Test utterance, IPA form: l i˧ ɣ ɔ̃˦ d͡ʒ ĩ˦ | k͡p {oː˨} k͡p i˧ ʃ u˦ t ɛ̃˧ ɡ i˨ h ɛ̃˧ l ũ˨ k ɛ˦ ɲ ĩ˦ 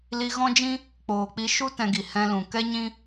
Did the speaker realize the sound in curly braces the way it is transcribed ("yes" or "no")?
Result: yes